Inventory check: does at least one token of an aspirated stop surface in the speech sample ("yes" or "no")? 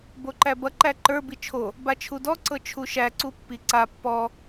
yes